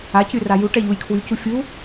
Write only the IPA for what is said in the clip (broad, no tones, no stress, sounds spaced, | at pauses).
a c y r a j u ʈ ɛ ʎ u j kʰ w y c u fʲ u